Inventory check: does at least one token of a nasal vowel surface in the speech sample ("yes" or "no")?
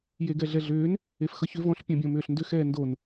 yes